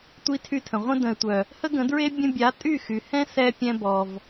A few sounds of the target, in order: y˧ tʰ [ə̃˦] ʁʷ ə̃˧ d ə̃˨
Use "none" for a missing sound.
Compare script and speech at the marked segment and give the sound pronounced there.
ə̃˨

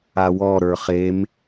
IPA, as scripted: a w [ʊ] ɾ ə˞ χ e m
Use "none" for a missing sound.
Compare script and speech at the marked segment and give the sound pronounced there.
ɔ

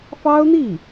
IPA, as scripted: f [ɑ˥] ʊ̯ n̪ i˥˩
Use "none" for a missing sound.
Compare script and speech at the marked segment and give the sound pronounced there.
ɑ˥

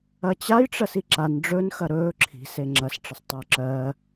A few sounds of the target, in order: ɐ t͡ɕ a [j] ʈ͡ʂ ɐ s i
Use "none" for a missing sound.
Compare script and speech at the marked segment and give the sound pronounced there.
j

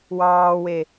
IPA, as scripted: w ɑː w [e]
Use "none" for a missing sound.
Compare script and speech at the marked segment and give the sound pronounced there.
e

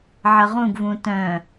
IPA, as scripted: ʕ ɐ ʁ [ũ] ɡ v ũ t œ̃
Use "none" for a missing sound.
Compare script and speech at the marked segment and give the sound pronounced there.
ũ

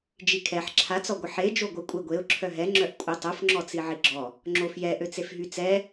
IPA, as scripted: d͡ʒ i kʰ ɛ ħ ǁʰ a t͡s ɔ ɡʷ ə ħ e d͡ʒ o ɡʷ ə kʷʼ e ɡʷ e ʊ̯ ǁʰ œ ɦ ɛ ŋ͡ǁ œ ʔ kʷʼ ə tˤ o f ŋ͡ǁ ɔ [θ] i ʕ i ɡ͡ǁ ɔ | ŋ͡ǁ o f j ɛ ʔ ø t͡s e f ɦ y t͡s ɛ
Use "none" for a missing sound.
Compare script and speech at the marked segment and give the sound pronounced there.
t͡s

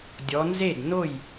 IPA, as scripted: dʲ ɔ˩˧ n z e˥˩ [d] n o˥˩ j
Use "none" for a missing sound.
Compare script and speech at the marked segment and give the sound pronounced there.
d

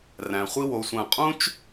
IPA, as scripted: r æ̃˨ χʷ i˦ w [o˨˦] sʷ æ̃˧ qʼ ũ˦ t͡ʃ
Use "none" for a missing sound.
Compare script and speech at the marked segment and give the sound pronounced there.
o˨˦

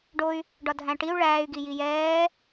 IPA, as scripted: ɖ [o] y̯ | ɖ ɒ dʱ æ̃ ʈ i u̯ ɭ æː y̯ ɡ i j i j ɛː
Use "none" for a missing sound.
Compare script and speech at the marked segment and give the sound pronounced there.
o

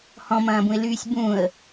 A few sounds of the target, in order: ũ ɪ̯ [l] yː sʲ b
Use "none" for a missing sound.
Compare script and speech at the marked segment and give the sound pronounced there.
l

